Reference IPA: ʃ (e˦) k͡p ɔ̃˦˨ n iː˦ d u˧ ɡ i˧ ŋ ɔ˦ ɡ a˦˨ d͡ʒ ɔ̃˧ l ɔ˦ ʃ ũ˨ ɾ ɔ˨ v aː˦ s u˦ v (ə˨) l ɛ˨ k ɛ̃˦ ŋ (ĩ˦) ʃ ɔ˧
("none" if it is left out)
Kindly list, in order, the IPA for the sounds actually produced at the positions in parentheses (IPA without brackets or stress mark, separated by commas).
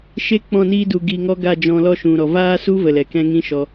e˦, ə˨, ĩ˦